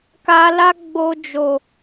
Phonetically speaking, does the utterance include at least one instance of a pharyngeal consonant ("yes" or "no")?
no